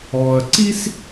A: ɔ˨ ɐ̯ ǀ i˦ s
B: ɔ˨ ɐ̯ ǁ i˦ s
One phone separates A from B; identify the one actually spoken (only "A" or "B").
A